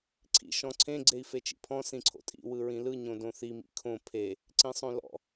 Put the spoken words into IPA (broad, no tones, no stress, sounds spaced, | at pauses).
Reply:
ǀʰ ḭ ʃ ɔ̃ ǀʰ ẽ ɡ͡ǀ e i̯ f e t͡ʃ ḭ pʰ ɔ̃ s ĩ ǀʰ o̰ tʼ ḭ w ɯ ɹ ĩ l ɯ ɲ õ d õ θ i m ḭ kʰ õ pʰ e | ǀ ĩ sˤ õ l ɔ̰